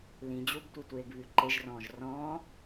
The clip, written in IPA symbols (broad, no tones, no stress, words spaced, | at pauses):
lĩ d͡ʑubtʷitʷeːɡβʉ ǃeʒrɔ̃ːʒ rɔ̃ː